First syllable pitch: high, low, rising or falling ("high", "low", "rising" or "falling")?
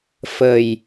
low